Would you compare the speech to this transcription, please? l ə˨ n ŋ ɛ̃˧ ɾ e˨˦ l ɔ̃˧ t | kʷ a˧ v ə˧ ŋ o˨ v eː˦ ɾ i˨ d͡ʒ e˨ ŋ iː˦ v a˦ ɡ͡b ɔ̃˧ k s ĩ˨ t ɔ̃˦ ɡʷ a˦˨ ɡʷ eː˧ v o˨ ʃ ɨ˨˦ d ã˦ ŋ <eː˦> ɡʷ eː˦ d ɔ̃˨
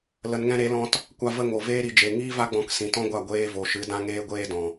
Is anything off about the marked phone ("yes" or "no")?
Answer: no